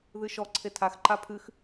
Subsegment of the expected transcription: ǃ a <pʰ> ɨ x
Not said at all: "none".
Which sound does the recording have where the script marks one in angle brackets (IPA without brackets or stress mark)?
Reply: pʰ